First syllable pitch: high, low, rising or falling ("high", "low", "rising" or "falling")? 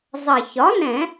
low